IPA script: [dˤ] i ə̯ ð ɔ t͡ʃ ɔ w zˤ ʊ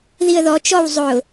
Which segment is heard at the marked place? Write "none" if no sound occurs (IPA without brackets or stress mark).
ð